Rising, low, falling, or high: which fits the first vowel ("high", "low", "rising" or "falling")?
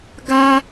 high